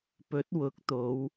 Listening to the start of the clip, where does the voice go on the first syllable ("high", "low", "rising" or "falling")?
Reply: rising